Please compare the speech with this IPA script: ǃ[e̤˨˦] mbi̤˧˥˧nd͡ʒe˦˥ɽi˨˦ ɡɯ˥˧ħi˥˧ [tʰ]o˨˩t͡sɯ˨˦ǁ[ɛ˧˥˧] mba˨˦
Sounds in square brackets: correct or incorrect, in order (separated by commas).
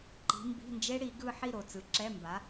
incorrect, incorrect, correct